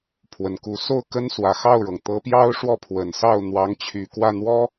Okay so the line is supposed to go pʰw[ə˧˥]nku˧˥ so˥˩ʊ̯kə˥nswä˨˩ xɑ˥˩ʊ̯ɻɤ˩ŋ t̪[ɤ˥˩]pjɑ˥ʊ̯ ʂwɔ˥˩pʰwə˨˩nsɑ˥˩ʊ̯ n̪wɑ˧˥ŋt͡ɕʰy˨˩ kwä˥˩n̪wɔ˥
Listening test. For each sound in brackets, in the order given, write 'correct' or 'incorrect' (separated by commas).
incorrect, incorrect